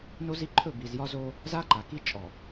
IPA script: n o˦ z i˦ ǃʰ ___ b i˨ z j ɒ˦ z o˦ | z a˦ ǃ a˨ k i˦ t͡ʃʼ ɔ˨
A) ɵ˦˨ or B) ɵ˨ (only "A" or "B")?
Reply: A